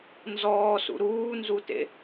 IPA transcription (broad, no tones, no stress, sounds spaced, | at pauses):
n z ɔː s ṵ ɾ uː n z u t ḛ